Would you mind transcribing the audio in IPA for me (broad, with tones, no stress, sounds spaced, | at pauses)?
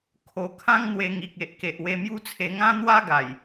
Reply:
kʰ o˧ kʰ ã˦ ŋ n̪ w e˧ ŋ i˨ k̚ e˨ ʔ k e˨ ʔ w e˧ m j u˦ t͡sʰ e˧ ŋ ã˦ n̪ w a˦ ɡ a˨˩ j